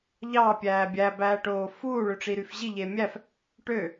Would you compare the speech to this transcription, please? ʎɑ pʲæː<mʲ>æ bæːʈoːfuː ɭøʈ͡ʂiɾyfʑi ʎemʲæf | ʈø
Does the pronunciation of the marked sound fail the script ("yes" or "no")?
yes